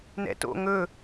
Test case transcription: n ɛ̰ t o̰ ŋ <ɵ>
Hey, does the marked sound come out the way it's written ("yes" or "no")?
yes